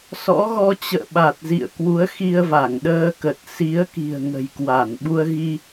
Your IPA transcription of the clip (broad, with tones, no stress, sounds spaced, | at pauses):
s ɔ̰˧˥ ɣ ɔ˧ t͡ɕ ə̰ː˧˨ ɓ a˨˩ t̚ z ḭ˧˨ ə̯ k w u˨˦ ə̯ x i˧ ə̯ v a˧˩ ŋ ɗ əː˧ k ə˨˩ t̚ s i˨˦ ə̯ k i̤˨˩ ə̯ ŋ ə̤˨˩ j k w a˧˩ n ɓ u˧ ə̯ ɣ i˧